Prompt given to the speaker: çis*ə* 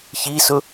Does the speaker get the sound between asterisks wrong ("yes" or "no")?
yes